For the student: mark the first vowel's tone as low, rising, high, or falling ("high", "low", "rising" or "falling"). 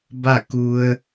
falling